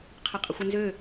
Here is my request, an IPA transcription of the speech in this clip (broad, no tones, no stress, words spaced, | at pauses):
qʰɐqʼəxʷɪnzø